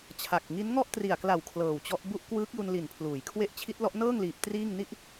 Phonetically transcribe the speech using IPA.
t͡ɕʰa˨˩k̚ ŋi˦˥nŋɔ˥˩ʔ tri˨˩a̯kla˨˩w kʰlɤː˨˩wt͡ɕɔ˦˥ʔ bu˦˥ʔkwɯː˦˥k̚ju˧n li˨˩npʰluː˩˦j kʰwe˦˥ʔt͡ɕʰi˦˥t̚lɔ˦˥ʔ nɤː˥˩ŋliː˨˩p̚ triː˥˩ŋ ni˥˩ʔ

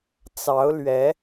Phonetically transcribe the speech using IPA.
t͡sɑ˨˦ʊ̯lɥɛ˨˦

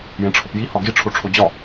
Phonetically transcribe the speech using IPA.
jẽʈ͡ʂʰɒpji hɒɡi ʈ͡ʂʰoʈ͡ʂʰod͡ʑɒ

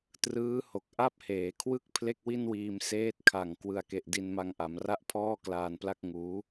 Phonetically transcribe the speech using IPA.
trɯː˦˥ho˨˩k̚ ʔa˥˩p̚heː˩˦kʰwɯ˥˩k̚ pʰle˥˩k̚wi˥˩nwiː˧m seː˦˥t̚kʰa˨˩ŋ kwɯ˨˩a̯ke˨˩ʔ di˧nma˧ŋʔa˩˦mra˥˩ʔ pʰɔː˥˩klaː˧npla˥˩k̚ ŋuː˦˥

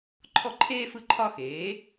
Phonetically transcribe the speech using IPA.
ǃʰɔ˥˩ǃʰeː˥fɯ˥˩ ǃʰɒ˥˧xeː˩˥

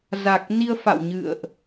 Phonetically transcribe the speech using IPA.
za˨˩k̚ ni˧ə̯fa̰˧˨w ɲɨ̰˧˨ə̯ʔ

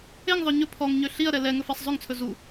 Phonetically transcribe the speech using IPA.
eŋðˤœ ɲɵ pʰɔŋɲø ɬiɐ̯ɾɛ lɛ ŋɵfæsˤzˤɵŋt͡sʰɵ zu

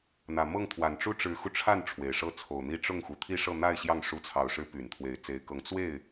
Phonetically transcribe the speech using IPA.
n̪ä˨˩mɤ˥˩ŋt̪ʰwa˨˩n ʈ͡ʂu˥ʈ͡ʂɻ̩˧˥xu˧ʈ͡ʂʰa˥˩n ʈ͡ʂʰwe˨˩ɪ̯ʂɤ˥˩t͡sʰo˨˩ʊ̯n̪i˥ ʈ͡ʂʊ˥˩ŋ xu˨˩ t̪ʰi˥˧ʂɤ˥˧n̪a˥˧ɪ̯ ɕjɑ˥˩ŋ ʂu˧˥t͡sʰɑ˨˩ʊ̯ʂɻ̩˧˥ py˨˩nt̪ʰwe˧˥ɪ̯t͡se˧˥ɪ̯kɤ˧˥ŋ t͡swe˥˩ɪ̯

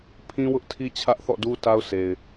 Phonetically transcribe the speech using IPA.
pʰĩ˦wʊ˦ʔtʰi˦ t͡ɕʰä˦ʔθɔ̰˦˨du˦ ta˦ʊ̯se˨ɪ̯

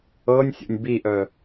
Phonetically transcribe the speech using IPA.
ɤnʲsʲo̰nʲ biʔœ

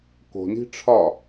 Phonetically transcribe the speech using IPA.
ko̤ni̤ ʈ͡ʂʰɒ

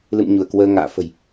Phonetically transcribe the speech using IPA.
lɨ̰˧˨m ɲu˧˩ə̯kwəː˧ŋa̰ː˧˨ fə̤˨˩j

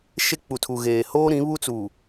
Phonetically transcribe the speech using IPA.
ʃe˦k͡pu˨tʰu˨ɣeː˨ hoː˦ɾĩ˨˦ βu˦t͡suː˨

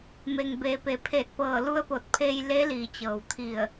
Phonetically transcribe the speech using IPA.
me˩ŋbeː˩pe˩˧pʰe˧˩t̚ pɤː˧˩lu˧ə̯po˧˩t̚pʰeː˧j le˧˥liː˩t͡ɕɤː˩wt̪ʰi˧˩ə̯

